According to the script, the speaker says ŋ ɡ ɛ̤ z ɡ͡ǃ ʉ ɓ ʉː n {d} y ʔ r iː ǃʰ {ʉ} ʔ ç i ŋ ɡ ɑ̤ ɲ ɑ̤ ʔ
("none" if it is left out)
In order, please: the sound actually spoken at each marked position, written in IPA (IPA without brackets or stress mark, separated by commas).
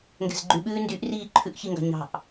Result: d, ʉ